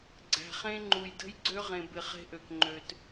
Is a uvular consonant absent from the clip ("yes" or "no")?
no